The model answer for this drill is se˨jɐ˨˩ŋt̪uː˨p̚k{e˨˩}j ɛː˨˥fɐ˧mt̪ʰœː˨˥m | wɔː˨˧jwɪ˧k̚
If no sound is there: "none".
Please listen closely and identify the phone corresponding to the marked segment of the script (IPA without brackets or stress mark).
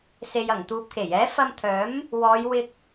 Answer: e˨˩